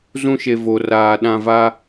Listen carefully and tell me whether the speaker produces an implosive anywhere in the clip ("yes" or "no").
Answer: yes